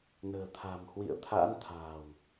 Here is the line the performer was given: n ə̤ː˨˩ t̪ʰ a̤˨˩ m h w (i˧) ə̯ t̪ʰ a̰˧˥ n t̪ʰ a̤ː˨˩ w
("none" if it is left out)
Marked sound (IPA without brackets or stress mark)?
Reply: ḭ˧˨